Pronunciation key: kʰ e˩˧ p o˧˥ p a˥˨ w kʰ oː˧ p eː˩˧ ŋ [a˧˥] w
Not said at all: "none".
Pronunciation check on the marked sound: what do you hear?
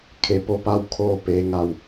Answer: a˧˩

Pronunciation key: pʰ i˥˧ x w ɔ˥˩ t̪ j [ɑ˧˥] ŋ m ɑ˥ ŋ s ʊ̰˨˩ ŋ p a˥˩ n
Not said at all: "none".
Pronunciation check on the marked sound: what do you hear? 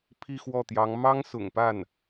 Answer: ɑ˧˥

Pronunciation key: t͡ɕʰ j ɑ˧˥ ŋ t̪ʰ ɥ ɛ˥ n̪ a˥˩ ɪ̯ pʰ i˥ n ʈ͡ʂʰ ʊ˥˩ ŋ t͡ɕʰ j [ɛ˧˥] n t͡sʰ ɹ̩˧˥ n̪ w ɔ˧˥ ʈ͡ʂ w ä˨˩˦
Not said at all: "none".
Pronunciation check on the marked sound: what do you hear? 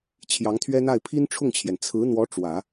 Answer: ɛ˩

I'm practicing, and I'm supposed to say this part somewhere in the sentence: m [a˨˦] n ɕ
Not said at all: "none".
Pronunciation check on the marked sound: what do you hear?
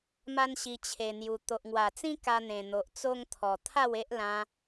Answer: a˦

